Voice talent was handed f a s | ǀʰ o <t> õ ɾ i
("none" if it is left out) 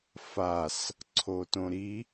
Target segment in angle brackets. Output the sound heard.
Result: t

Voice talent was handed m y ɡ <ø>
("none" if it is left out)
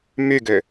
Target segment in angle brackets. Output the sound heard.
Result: ø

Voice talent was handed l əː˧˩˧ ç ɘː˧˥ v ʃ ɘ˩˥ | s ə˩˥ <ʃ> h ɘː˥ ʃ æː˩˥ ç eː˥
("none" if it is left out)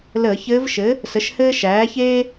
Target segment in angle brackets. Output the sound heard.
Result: ʃ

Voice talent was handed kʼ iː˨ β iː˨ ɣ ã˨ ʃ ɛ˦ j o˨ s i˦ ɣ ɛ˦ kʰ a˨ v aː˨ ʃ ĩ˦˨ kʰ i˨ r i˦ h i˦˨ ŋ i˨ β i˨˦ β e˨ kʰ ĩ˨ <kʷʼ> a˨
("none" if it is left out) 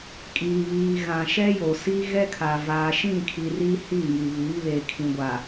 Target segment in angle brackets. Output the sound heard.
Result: ɡʷ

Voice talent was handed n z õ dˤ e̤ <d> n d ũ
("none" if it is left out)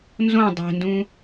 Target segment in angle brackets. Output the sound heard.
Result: none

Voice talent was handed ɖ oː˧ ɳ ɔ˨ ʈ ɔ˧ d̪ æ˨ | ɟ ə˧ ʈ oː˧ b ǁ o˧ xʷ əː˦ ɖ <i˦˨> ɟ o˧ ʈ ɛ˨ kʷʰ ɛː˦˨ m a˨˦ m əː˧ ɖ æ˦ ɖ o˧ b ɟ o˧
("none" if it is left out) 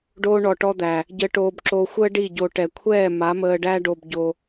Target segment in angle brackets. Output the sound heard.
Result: i˦˨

